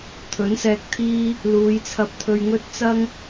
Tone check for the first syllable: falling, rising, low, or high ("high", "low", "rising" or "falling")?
rising